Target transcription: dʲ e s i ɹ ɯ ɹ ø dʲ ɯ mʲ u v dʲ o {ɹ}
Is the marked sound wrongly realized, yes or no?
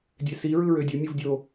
yes